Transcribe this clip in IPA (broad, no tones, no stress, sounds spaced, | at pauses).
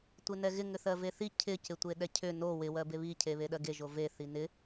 tʷ ɪ n ɛ ɣ ɪ ŋ ʏ θ ɜ v e θ i cʰ ɪ c ɪ tʷ e ɗ ɛ cʰ ʏ n o w ɪ w ɜ b e β i cʰ e β e ɗ ɜ ɡ e ʒ o v e θ i n ɪ